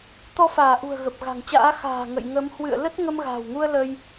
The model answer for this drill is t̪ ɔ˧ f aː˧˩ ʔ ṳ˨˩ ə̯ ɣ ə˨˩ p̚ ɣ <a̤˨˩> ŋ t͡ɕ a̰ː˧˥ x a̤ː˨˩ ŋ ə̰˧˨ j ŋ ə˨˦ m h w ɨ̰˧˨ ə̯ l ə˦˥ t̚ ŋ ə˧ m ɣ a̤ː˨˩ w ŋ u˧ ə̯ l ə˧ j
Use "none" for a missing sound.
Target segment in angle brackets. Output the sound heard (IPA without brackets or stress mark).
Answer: a̤˨˩